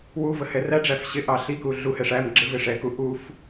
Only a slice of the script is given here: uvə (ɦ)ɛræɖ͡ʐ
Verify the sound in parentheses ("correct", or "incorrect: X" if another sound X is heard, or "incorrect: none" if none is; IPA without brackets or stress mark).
incorrect: h